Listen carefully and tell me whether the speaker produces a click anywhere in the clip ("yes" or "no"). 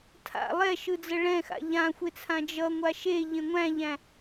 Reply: no